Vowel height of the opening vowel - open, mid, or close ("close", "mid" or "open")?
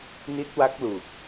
close